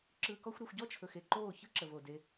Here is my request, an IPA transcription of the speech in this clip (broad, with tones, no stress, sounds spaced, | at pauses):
ǁ ɯː˧ k ɔ˦ xʷ ɾ ɛ˧ xʷ ɟ ɔ˦ t͡ʃʰ ɵ˨ x e˨ ǃ oː˦˨ ç ɯ˦ ǁ ə˨ v o˨ d e˧